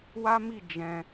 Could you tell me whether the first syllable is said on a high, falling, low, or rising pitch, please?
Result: high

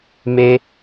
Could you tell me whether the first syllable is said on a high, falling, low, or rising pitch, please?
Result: high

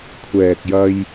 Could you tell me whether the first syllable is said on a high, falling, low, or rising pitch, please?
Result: low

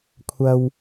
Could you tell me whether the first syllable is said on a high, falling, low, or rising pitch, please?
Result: high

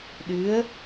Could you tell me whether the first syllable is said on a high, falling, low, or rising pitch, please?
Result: rising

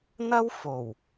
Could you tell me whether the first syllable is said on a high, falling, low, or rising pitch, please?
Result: high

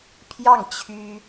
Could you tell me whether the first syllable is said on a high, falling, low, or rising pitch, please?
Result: falling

